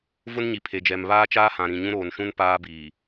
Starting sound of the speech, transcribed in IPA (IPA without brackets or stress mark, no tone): v